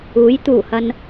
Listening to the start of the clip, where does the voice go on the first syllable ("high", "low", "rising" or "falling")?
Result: rising